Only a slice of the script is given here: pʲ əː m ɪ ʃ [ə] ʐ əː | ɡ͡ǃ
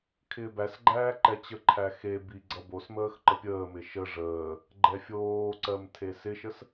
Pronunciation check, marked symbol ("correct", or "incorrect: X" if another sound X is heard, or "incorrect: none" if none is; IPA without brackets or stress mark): correct